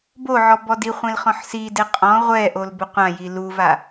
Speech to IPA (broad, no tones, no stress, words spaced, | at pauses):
boʕɔ bɔdiχʷẽl χɔ̃ħside qʼɔ̃ ʁʷɛʔol bʊqʷãji luva